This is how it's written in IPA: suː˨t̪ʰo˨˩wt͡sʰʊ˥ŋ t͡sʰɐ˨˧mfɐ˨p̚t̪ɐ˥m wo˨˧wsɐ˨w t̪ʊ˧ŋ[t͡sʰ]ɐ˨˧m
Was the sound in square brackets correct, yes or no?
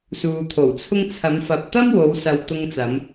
no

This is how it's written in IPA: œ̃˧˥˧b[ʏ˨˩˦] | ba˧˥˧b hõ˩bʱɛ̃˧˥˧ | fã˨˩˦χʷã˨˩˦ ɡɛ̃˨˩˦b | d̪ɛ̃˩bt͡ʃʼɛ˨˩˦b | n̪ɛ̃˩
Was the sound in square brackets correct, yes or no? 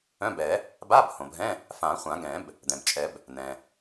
no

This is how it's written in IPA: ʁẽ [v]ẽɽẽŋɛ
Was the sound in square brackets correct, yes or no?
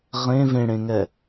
yes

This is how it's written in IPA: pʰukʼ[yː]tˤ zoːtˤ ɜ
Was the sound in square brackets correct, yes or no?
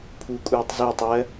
no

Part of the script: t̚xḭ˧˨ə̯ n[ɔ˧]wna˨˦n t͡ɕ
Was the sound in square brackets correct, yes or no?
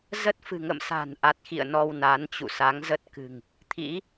yes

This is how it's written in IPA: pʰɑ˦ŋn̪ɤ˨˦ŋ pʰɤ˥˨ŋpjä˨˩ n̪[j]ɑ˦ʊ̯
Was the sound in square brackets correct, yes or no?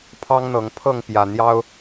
yes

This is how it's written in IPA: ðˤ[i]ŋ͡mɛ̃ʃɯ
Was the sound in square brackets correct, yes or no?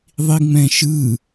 yes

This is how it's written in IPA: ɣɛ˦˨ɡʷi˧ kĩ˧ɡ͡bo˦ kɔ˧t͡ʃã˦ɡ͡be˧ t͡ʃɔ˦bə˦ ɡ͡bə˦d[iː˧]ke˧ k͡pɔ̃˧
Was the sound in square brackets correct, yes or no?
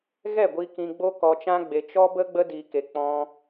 yes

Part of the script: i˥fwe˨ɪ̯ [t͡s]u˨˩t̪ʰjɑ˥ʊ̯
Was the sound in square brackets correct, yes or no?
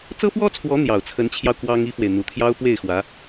no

